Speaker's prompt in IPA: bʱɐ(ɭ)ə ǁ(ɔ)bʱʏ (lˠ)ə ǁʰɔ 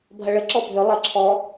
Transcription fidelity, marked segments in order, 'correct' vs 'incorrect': correct, correct, correct

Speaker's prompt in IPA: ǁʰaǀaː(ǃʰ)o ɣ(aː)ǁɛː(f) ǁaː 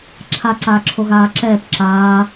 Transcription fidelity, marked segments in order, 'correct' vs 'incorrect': incorrect: ǁʰ, correct, incorrect: p

